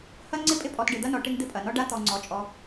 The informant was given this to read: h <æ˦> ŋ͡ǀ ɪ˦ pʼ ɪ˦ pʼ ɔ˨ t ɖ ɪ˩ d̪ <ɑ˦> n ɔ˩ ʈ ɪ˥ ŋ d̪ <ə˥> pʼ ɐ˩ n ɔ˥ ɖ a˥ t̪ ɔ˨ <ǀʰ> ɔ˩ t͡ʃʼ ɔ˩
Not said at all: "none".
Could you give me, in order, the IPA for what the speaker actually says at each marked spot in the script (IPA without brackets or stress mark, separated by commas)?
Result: ɐ˦, ɐ˦, ɪ˥, ŋ͡ǀ